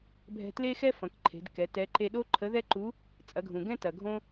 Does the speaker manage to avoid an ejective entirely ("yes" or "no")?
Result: no